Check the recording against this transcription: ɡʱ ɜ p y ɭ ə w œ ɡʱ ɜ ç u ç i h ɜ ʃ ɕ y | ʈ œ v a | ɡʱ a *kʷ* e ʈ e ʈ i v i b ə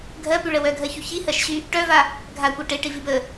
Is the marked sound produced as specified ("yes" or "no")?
yes